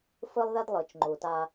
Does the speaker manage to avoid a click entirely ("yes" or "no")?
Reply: no